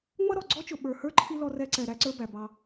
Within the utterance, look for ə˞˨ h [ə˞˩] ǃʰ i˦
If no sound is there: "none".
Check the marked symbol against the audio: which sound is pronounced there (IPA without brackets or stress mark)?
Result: ə˞˥